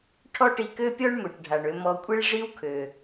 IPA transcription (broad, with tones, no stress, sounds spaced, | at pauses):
ʈʰ ɔ˥ ʈ i˧ k ø˥ pʲ ɔ˥ ɳ m ø˩ ʈ ɖʱ a˩ ɳ ø˧ m ɔ˧ kʷʼ i˥ ɭ ʐ i˥ w kʰ ø˩